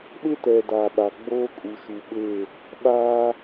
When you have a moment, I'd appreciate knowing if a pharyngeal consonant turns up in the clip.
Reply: no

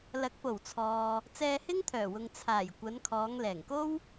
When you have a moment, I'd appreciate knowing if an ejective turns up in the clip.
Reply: no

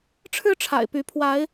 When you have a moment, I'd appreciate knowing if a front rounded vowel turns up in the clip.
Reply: yes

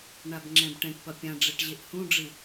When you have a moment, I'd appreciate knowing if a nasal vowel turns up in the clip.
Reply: yes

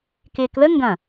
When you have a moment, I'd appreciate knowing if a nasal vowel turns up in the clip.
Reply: yes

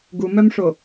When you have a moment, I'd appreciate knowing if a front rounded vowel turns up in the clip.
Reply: yes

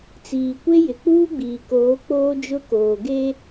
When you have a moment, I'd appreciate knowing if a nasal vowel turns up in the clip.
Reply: no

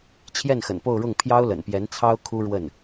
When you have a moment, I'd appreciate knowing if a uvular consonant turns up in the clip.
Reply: no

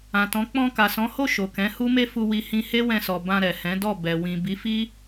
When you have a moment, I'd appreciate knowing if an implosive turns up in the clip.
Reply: no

